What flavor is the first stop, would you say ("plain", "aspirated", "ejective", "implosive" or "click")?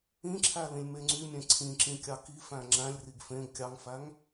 click